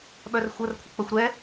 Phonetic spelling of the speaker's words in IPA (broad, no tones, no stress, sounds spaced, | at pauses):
ɓ œ r xʷ ə r kʷʰ ə k͡p ə xʷ ɾ ɛ